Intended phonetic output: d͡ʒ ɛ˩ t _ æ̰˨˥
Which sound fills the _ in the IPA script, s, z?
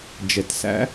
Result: s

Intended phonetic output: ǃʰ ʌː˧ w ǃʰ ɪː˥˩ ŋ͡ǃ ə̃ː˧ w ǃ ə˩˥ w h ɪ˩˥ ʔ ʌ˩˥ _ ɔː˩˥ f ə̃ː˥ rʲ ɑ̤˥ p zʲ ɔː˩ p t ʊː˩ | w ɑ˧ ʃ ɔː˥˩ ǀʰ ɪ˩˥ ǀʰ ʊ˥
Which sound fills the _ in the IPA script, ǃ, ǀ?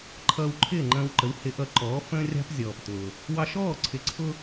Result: ǃ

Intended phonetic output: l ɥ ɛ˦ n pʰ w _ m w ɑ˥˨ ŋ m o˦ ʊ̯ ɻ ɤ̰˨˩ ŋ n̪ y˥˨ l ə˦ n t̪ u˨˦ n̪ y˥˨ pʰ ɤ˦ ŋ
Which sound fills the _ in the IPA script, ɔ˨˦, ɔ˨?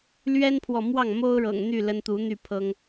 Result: ɔ˨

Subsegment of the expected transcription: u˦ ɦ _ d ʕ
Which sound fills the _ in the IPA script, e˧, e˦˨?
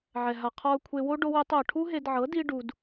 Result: e˧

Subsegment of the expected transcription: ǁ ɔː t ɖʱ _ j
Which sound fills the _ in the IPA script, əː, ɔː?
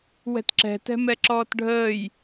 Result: əː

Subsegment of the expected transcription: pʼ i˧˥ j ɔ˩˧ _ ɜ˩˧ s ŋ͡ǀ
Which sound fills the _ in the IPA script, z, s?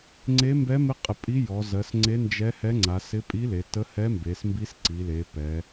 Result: z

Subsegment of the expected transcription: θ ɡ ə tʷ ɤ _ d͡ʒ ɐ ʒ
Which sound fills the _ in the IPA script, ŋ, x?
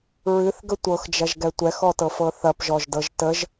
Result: x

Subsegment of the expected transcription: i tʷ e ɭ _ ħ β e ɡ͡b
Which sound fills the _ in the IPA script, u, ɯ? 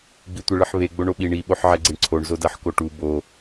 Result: ɯ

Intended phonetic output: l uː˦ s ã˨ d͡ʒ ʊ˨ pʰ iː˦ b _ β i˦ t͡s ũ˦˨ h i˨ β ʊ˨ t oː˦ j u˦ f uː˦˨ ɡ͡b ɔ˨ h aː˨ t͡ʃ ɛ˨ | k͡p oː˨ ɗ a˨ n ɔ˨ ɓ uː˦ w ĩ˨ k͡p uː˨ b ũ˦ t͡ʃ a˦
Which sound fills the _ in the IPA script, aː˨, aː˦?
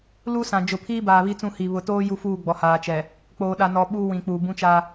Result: aː˨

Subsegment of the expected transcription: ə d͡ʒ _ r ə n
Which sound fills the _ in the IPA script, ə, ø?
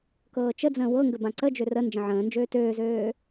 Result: ø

